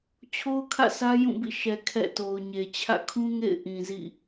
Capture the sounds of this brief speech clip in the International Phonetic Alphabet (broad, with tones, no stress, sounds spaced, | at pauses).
t͡ɕʰ o˦ ʊ̯ kʰ ä̰˦˨ s ä˦ j ũ˦˨ b ḭ˦˨ ʃ ɛ˨ kʰ ɛ̰˦˨ t o˨ ʊ̯ ɲ e˨ t͡ɕʰ ä̰˦˨ kʰ ũ˦ ŋ ḛ˦˨ ɪ̯ ʔ ĩ˨ z ḭ˦˨